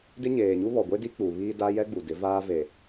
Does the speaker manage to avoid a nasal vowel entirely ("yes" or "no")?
yes